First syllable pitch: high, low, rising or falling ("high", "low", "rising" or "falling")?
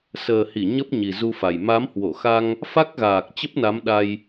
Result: low